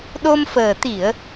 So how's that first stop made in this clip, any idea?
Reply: implosive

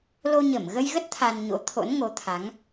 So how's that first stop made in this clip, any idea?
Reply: plain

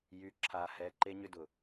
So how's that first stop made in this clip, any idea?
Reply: click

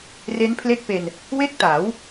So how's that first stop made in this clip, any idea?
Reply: aspirated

